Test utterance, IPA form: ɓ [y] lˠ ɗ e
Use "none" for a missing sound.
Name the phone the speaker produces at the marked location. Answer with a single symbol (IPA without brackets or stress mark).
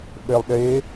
e